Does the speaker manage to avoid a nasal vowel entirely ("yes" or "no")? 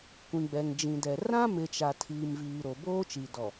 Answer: no